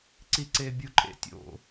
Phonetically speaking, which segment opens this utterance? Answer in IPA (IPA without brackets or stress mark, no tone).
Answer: ǀ